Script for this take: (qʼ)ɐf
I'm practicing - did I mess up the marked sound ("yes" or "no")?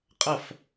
no